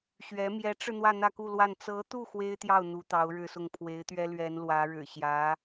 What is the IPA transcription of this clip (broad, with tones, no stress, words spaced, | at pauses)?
ɕɥɛ˧˥ mjɛ˧˥ʈ͡ʂɻ̩˧ n̪wä˥˧n̪ä˥˧ku˥˧lwa˥˩n t͡sɤ˧˥t̪u˥˩ xwe˥ɪ̯t̪jɑ˥˩ʊ̯ n̪u˧˥t̪ɑ˧˥ʊ̯ɻɻ̩˥˧sʊ˥˩ŋ pʰwe˧˥ɪ̯t̪ɥɛ˥ lɥɛ˧˥nlwä˧˥ ɻɻ̩˨˩ɕjä˧˥